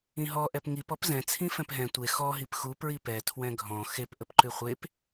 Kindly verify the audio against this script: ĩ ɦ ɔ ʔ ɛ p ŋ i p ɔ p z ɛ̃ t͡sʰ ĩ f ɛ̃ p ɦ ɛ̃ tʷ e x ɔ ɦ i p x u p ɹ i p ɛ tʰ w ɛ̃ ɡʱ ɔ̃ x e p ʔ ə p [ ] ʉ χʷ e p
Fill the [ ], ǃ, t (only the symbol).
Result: ǃ